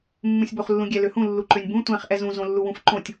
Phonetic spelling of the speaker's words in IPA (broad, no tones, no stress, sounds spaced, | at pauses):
mː ũ sʲ b o χ lː ũ ɡʲ ɛ l ø h ũ lː u ǃ ø nʲ b ũ tʷ ɛ̃ χ ʔ ɛ z ũ z õ lː u w ũ f ǃ õ tʲ